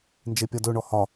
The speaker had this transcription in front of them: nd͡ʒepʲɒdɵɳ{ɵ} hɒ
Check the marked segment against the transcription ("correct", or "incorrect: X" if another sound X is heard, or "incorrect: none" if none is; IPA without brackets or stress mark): incorrect: ɔ